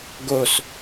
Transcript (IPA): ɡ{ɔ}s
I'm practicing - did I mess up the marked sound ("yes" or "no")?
yes